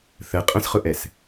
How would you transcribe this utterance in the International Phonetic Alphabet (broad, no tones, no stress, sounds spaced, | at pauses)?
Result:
θ ə qʼ ə̃ s χ ʊ ʔ ɛ s